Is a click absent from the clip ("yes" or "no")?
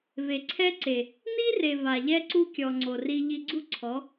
no